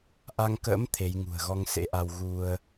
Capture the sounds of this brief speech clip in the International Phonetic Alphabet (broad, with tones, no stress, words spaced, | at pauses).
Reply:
ʔa˧ŋkə̰ː˧˥m t̪ʰe˨˦jŋṳ˨˩ə̯ ɣɔ˧ŋsḛ˧˥ʔa˧w ɣu˧ə̯